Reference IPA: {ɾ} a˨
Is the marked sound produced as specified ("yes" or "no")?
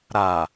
yes